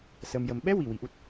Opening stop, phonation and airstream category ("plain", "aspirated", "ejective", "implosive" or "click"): implosive